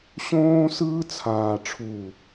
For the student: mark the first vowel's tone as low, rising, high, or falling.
high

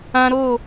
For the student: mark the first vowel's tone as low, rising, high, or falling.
high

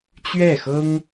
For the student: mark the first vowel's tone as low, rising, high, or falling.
falling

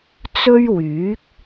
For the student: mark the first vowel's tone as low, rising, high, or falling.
high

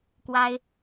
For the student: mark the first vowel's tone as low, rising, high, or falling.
high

